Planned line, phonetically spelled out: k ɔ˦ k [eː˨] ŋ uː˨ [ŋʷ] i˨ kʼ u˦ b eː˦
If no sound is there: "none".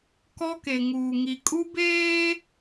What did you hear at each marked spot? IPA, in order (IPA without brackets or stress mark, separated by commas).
e˨, ŋ